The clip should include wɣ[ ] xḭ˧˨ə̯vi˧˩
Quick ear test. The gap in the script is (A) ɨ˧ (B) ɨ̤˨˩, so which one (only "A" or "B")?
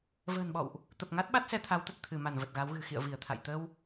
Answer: B